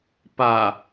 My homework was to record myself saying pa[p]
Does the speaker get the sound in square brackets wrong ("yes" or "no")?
yes